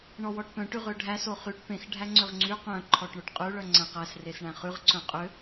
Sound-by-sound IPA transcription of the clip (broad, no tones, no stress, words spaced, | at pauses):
ɳɔwɔʈpœ̃ ʈyʁøɖʱæ soχyʈ pẽx ɖʱæŋ͡ǀøʁŋ͡ǀy qœ̃ ǃʰɔʈɳoʈqʼʉ ɭœŋ͡ǀæ̃qæs resɳæ̃χʉʁ ǀœ̃qʼø